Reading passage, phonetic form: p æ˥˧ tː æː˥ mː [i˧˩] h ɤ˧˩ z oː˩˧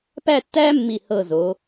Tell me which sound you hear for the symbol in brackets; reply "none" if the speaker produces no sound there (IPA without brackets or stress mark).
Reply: i˧˩